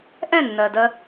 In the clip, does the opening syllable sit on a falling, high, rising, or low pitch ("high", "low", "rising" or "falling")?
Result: falling